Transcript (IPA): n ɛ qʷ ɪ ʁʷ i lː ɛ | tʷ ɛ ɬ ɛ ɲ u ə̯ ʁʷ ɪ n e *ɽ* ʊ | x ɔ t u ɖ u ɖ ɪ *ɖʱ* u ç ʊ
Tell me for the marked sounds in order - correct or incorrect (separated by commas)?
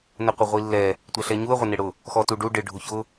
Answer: correct, correct